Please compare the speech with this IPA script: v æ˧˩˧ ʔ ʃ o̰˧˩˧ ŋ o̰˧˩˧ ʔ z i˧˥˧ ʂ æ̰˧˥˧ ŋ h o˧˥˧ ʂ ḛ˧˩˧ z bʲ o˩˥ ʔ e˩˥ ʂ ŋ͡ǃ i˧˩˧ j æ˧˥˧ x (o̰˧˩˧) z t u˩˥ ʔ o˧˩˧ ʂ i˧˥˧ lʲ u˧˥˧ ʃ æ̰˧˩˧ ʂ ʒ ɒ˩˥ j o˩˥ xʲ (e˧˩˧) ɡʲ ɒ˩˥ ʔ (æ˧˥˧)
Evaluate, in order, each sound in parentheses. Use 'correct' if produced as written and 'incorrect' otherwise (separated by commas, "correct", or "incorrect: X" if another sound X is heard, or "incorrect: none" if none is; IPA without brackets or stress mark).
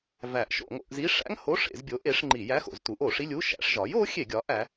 correct, correct, incorrect: æ˩˥